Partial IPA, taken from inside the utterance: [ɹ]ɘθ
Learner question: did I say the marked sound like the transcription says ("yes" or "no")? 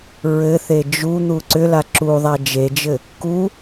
yes